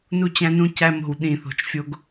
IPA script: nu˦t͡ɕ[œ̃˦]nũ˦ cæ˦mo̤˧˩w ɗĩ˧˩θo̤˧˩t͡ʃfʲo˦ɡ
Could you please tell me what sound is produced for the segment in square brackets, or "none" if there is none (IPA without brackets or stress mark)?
æ̃˦